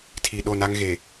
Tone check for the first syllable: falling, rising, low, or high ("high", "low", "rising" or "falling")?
low